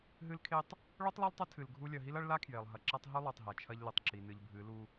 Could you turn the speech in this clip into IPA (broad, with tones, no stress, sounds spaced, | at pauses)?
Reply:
ɦ ɨ˦ l kʰ e˦ tˤ | ɭ o˦ tˤ lˠ ɐ˦ l tˤ ɐ˦ tʰ ɨ˨ l ɡʱ u˦ lʲ ɐ˨ ɦ i˦ l ɐ˦ ɭ l a˦ kʰ j e˨ lˠ ɦ ɐ˨ ǁ a˦ tˤ ɦ ɵ˦ lˠ o˨ tˤ ɦ a˨ t͡ʃʰ ɐ˦ ʎ l ɨ˨ tˤ ǁ i˨ n ɨ˨ ʎ bʱ ɨ˨˦ l u˦